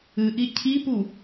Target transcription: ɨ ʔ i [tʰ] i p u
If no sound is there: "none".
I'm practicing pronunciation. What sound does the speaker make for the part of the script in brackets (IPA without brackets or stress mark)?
cʰ